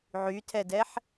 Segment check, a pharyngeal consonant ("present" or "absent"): present